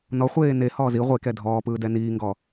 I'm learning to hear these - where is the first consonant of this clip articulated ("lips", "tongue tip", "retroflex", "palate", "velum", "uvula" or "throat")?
tongue tip